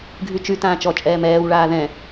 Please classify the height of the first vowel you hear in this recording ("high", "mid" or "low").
high